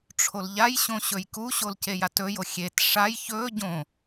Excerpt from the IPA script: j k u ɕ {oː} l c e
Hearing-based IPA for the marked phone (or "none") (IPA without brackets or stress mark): o